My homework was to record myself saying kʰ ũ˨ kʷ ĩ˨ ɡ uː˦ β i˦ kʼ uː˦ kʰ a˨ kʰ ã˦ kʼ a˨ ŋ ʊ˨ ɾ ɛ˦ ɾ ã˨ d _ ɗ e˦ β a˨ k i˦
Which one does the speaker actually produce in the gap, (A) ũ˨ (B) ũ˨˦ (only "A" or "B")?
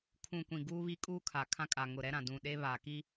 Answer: A